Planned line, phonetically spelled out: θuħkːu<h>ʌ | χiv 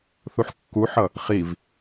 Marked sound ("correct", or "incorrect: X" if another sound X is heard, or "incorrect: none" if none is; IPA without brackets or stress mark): incorrect: ħ